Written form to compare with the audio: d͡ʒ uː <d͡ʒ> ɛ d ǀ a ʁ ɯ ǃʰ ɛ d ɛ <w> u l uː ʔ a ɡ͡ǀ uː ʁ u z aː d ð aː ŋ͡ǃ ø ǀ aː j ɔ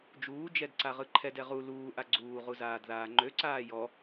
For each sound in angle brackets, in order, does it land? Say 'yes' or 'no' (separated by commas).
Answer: yes, no